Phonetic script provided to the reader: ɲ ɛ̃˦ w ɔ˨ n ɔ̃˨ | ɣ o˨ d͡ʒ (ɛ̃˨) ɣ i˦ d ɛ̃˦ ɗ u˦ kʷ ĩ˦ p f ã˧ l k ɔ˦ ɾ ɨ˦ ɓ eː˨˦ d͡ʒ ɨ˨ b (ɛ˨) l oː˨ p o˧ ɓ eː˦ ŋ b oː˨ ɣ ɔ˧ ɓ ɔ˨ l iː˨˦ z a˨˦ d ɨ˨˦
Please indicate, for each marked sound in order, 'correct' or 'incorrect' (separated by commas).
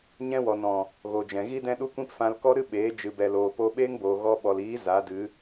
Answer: correct, correct